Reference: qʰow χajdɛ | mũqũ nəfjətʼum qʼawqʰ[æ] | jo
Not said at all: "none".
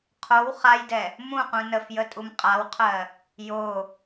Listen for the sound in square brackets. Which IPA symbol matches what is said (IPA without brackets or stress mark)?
ɜ